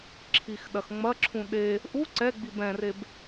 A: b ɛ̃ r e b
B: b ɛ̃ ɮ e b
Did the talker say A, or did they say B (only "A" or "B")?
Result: A